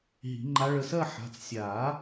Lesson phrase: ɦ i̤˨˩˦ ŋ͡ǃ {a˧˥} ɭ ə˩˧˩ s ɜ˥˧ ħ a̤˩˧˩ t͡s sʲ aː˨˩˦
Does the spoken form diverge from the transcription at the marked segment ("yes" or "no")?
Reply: no